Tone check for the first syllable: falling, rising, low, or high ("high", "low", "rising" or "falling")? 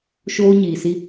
high